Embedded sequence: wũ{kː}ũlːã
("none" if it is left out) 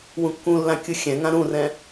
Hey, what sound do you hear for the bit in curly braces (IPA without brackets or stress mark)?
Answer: kː